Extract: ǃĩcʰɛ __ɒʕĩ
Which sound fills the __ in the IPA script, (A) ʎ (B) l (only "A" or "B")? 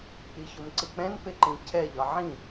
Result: A